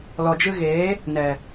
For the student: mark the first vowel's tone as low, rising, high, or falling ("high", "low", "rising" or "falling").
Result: low